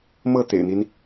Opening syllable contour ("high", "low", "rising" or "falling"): falling